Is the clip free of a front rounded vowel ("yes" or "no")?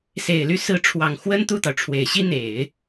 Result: no